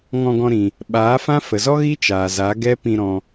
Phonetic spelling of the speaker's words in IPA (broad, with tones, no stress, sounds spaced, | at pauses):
ŋ ɔ̃˧ ɡ ɔ̃˧ ɾ ĩ˨ | ɓ aː˨˦ f ã˦ f ə˨ z ɔ˦ ɣ i˦ t͡ʃ aː˨ z a˨˦ ɡ ɛ˦ p ĩ˧ ɾ ɔ̃˧